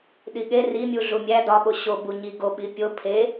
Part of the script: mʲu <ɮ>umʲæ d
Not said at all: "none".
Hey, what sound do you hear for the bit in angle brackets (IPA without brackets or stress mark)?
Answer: ɮ